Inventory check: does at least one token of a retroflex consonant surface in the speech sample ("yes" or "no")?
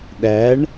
yes